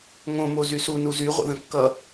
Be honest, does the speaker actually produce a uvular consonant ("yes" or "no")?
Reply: yes